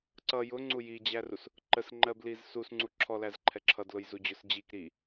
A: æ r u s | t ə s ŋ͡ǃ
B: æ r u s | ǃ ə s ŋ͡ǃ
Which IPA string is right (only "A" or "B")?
B